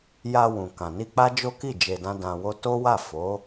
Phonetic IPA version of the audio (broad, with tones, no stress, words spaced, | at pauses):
ja˧wũ˨kã˨ni˧ k͡pa˦d͡ʒo˦ki˦˨ d͡ʒe˧dã˦dã˧wo˦ to˦wa˦˨ fo˨˦